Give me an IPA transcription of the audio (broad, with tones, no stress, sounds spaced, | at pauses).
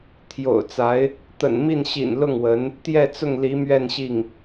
t̪ʰ j o̰˨˩ ʊ̯ t͡s a˧˥ ɪ̯ | t̪ ə̰˨˩ n m i˥˩ n ɕ ḭ˨˩ n l ʊ˥˩ ŋ w ə˧˥ n | t̪ j ɛ˥˧ t͡s ʊ˥˩ ŋ l i˧˥ m ɥ ɛ˥˧ n ɕ i˥˩ ŋ